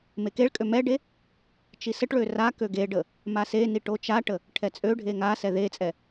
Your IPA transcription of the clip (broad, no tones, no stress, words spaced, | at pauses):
mekeɭkʼø mɛɖe | t͡ʃisəʈɭø rakø ɡeɖə | maseni ʈot͡ʃaʈə | ʈʰɛt͡sʼøɖʱe ŋasɛ ðet͡sʼɛ